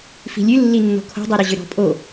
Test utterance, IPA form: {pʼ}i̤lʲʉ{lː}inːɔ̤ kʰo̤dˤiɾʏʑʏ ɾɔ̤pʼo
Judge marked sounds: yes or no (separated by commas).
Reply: no, yes